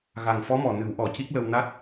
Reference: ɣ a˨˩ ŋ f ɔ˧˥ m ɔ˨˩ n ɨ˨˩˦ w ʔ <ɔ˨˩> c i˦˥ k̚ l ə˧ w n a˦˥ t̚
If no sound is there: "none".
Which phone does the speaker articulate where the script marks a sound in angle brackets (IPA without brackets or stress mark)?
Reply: ɔ˨˩